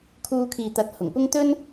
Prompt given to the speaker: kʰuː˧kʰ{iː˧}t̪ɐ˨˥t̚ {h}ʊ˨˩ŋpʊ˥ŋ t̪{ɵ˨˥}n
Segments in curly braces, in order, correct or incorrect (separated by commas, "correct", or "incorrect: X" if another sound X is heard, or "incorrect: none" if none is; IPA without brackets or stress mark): incorrect: iː˨, correct, incorrect: ɵ˥